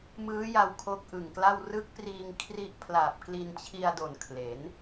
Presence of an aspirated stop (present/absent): present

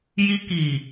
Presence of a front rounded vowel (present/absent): absent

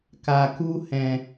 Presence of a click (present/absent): absent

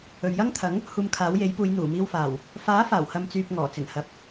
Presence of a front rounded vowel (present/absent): present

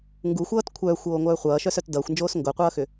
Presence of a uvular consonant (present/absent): present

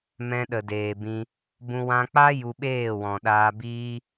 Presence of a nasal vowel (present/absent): present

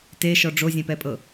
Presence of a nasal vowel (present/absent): present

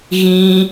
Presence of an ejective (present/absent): absent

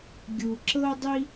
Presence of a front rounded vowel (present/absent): absent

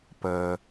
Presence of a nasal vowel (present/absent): absent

